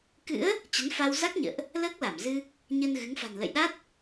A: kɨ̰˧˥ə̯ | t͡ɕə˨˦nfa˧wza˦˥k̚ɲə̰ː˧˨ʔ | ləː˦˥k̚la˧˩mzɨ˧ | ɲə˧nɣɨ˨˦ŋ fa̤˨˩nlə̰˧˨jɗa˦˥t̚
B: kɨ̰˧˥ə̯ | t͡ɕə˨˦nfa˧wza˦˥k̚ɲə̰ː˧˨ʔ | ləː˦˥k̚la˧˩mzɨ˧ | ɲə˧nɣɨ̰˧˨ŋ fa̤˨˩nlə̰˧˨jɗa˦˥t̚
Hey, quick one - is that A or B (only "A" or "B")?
A